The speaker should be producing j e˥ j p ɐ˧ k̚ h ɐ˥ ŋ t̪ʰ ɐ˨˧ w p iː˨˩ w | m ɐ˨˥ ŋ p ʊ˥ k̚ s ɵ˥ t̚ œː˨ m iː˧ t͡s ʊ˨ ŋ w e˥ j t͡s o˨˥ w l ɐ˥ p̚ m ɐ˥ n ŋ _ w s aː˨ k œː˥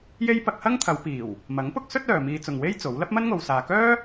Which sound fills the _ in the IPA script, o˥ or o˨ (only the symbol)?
o˨